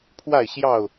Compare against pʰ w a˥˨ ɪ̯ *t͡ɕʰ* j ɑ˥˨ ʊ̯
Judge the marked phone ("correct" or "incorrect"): incorrect